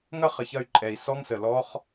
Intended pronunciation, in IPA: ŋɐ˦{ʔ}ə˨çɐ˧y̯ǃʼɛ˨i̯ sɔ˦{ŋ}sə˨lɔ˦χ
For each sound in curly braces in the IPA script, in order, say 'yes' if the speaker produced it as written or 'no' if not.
no, yes

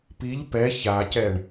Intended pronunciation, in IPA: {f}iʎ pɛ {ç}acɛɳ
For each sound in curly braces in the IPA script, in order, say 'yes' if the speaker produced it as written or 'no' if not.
no, yes

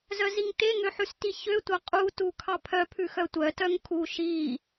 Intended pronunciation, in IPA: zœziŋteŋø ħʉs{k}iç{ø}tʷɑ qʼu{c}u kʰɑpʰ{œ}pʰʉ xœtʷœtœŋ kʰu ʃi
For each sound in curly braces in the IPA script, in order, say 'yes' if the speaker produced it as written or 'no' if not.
no, yes, no, yes

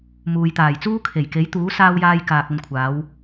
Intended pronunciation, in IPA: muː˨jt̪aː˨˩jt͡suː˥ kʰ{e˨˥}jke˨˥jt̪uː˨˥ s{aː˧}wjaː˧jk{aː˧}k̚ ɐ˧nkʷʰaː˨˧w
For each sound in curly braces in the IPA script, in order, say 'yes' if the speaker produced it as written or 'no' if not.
no, yes, no

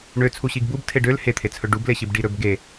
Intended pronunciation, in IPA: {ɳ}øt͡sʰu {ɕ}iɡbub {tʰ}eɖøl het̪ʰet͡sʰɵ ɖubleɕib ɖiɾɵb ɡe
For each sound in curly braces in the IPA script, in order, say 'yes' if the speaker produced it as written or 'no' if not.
yes, yes, yes

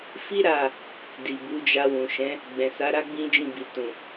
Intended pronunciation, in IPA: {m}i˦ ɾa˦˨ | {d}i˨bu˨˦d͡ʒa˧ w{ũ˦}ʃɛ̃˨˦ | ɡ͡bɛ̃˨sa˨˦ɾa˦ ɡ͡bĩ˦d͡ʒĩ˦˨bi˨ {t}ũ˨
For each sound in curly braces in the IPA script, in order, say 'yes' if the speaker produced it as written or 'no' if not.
no, yes, no, yes

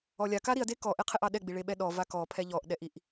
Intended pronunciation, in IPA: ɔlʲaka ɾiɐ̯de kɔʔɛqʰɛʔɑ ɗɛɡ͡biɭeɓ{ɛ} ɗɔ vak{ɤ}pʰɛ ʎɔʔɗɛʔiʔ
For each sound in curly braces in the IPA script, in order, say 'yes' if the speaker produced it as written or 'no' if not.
yes, no

